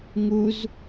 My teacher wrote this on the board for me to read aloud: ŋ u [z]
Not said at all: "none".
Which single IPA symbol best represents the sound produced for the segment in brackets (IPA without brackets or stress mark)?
z